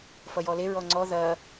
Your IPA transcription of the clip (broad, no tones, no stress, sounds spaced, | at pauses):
f ʌ j ɔ l e ɹ ɔ ŋ͡ǀ ɔ ð ɐ